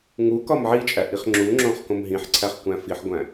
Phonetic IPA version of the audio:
ŋu kɒmʕit͡ʃʼæ ʔiχŋ͡ǁuŋ͡ǁõχ kõmɦĩħǀʰæχ kʷæ̃fiħɡʷæ̃

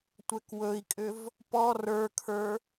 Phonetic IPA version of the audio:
tʷɛkwɵi̯kʼʏv | pɔ rə˞kʰə˞

